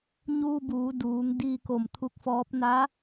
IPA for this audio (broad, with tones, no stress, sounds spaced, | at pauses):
ɲ uː˧ b uː˩˧ d uː˩˧ ŋ d iː˧ k o˧˩ m t̪ʰ u˧˥ k̚ f ɔː˧˥ p̚ n aː˧˥